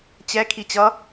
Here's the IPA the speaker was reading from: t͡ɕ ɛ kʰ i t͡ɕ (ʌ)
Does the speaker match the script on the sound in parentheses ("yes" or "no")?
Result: yes